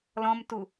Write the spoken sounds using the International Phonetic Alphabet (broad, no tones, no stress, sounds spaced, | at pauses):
l ɔ̃ m t u